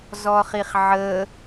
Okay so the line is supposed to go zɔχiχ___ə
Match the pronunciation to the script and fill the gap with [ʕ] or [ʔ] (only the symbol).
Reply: ʕ